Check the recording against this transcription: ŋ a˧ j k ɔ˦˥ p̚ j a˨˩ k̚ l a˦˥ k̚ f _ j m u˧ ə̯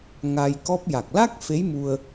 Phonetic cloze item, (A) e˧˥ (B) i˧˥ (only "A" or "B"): A